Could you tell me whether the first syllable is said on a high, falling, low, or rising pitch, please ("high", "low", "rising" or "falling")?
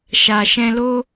low